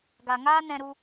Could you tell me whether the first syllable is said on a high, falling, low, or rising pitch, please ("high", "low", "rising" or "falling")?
low